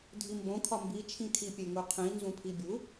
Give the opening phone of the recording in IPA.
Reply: dʱ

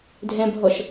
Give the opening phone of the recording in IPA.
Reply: dʱ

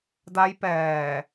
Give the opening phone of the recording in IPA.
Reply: d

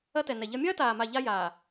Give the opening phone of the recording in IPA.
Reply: ɐ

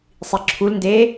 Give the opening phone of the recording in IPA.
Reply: sˤ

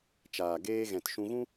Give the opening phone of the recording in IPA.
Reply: t͡ʃ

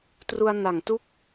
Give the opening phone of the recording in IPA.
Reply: t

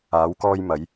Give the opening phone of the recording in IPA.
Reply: aː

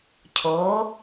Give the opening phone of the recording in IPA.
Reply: cʰ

